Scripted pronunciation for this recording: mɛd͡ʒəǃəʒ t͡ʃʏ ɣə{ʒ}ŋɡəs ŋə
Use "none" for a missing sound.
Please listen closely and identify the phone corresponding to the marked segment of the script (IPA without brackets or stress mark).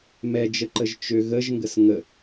ʒ